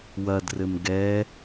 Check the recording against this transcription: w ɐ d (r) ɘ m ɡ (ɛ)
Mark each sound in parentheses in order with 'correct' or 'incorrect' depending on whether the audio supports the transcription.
correct, correct

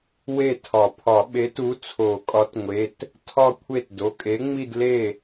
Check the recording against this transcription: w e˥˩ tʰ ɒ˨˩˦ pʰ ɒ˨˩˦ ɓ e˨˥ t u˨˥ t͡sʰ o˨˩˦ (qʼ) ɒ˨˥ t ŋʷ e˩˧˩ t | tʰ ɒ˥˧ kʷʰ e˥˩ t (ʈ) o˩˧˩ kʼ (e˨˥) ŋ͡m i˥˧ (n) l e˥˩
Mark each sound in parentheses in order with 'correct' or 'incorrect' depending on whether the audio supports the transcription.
incorrect, incorrect, correct, incorrect

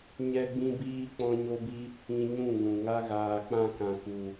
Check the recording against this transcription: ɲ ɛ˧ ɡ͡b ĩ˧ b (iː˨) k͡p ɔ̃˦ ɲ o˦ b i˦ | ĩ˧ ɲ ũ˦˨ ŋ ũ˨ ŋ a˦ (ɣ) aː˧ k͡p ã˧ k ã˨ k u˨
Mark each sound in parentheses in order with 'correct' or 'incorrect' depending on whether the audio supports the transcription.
incorrect, correct

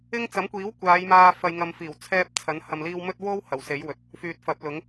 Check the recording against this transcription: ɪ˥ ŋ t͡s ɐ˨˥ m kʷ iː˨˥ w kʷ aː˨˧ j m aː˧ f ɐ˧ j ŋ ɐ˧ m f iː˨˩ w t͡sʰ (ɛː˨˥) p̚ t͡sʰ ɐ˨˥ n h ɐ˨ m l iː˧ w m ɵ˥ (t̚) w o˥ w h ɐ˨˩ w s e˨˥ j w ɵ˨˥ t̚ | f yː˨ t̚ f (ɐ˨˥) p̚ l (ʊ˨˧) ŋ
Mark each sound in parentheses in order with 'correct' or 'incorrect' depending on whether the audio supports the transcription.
incorrect, correct, correct, incorrect

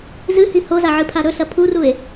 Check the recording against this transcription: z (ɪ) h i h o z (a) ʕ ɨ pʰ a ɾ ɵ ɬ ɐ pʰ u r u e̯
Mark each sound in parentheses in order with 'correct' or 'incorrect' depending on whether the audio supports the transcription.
incorrect, correct

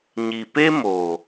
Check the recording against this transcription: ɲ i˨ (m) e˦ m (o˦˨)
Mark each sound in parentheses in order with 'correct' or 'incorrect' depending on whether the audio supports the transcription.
incorrect, incorrect

